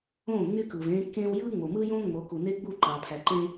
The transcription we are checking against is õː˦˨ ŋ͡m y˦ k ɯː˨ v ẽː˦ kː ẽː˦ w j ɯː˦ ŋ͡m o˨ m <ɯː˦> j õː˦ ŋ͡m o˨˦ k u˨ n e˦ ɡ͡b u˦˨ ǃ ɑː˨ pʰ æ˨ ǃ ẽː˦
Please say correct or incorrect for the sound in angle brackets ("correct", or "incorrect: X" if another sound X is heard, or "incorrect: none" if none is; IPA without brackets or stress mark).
correct